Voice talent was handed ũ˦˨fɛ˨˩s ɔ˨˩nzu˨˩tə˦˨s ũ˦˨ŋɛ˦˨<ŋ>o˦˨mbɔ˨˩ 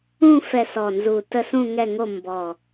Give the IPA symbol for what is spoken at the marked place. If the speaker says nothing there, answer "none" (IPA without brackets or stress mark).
ŋ